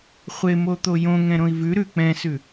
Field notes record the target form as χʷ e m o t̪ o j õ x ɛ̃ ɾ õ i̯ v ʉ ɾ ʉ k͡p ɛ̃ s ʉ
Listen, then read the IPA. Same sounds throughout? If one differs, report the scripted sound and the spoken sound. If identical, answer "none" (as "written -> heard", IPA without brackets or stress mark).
x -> ŋ